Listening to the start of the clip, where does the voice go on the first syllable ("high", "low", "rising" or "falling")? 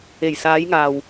low